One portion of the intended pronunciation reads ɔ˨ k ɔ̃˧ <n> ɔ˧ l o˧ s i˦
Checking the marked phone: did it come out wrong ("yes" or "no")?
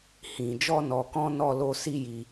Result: no